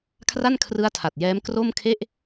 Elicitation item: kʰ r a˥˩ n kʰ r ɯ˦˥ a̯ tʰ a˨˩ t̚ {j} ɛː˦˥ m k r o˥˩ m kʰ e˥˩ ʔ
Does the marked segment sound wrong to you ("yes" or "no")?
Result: no